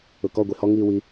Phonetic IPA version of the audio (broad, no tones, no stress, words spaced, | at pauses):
ʊkɔ ɡʷihɔ ŋiːwi